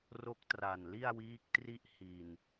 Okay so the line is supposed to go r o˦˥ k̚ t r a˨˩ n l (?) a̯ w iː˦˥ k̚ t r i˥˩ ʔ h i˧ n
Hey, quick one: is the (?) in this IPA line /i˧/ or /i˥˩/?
i˥˩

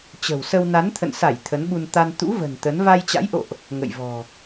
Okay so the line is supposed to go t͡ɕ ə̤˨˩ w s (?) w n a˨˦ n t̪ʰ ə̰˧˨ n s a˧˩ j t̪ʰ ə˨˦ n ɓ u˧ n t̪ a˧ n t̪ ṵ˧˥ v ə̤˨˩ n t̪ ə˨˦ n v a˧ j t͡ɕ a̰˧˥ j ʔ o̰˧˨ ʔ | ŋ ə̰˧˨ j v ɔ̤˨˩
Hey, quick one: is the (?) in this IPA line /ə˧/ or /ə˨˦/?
ə˧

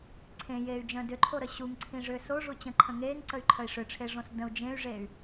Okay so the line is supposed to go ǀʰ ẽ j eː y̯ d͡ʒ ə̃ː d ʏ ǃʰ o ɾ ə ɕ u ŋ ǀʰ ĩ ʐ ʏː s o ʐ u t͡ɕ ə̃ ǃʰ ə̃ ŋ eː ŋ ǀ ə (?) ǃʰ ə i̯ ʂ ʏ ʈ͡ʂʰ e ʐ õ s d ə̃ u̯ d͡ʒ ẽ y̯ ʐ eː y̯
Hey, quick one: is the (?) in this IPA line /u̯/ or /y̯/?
y̯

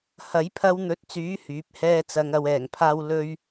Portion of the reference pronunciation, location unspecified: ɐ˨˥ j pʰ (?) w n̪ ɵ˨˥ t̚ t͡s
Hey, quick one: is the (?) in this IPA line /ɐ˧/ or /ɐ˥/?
ɐ˧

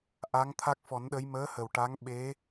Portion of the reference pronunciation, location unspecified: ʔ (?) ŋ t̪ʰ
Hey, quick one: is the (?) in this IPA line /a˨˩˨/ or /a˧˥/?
a˧˥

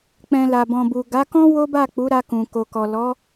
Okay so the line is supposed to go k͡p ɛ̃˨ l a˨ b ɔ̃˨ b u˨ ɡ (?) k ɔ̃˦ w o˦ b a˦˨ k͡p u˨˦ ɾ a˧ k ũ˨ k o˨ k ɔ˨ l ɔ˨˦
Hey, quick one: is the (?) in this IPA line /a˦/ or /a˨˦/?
a˨˦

